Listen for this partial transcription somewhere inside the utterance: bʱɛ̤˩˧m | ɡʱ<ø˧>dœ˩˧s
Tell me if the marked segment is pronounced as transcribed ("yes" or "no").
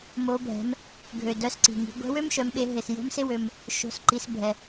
no